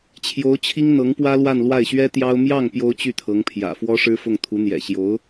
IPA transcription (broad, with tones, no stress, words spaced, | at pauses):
t͡ɕʰjo˧˥ʊ̯t͡ɕʰi˥ŋ n̪ɤ˧˥ŋpwä˥lwa˥˧nlwa˥˩ɪ̯ ɕɥɛ˥t̪jɑ˥ʊ̯ mjɑ˥˩ŋ pjo˥ʊ̯t͡ɕy˥˩t̪ʰɤ˧˥ŋpʰjä̰˨˩ fwɔ˥ʂɻ̩˥fʊ˥˩ŋ t̪ʰu˧˥n̪jɛ̰˨˩ ɕjo˧˥ʊ̯